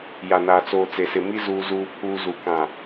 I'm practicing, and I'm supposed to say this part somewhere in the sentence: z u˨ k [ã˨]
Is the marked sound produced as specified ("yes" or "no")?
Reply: yes